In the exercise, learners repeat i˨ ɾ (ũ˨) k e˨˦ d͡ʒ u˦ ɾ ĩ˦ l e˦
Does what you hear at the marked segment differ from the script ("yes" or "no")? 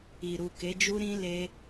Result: yes